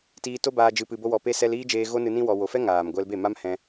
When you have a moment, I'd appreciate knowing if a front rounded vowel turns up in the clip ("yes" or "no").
no